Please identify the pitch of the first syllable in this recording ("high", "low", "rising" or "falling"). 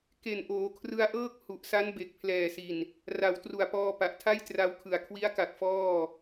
low